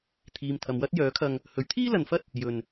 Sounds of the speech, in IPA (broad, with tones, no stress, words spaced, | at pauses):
t̪ʰiː˨mt̪ʰɐ˨mwɐ˥t̚ jœː˨˥kʰɐ˧ŋ | hɵ˨˧ɥt̪ʰiː˥lɐ˨nfɐ˥t̚ | jɵ˨n